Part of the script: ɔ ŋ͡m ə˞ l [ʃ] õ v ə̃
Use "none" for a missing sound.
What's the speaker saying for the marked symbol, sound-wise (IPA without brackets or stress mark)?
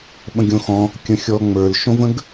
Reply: ʃ